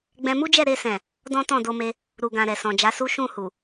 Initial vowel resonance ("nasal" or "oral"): nasal